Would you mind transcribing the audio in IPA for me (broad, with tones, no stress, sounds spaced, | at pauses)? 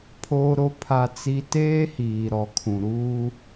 pʰ oː˦ ɾ o˦ pʰ a˦ t͡s i˦ t eː˦ h iː˨ ɾ ɔ˨ kʰ ũ˨ ɾ uː˦